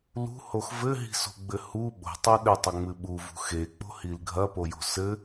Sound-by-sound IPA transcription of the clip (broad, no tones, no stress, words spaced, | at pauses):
lṳhox vɘɦi̤so̤ɡ͡bɘ hu ɓo̤tˤɛ ɗɘtˤɐŋ͡mɨ ɓuvṳ xek͡po̤hil ɡʱɐpojo̤ sɘ